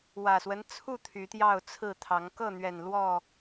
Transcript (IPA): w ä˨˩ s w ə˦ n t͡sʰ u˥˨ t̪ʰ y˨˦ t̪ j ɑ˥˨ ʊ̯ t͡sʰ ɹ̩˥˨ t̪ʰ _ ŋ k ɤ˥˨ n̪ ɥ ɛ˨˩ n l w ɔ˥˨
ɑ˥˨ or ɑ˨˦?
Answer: ɑ˨˦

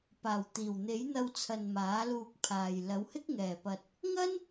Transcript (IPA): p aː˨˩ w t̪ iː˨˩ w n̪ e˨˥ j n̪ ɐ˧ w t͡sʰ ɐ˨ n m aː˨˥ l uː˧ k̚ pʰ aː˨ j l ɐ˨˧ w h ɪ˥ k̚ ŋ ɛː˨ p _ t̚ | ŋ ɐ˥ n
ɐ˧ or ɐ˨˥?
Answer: ɐ˧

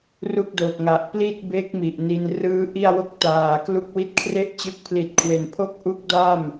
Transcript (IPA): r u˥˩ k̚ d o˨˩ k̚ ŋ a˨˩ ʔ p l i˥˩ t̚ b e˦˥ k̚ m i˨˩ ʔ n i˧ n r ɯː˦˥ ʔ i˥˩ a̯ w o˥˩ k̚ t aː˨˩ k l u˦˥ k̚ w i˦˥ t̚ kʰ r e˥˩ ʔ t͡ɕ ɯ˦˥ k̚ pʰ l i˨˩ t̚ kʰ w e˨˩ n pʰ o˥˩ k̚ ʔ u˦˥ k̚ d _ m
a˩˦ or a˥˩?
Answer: a˥˩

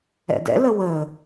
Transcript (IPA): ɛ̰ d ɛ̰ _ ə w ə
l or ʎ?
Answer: l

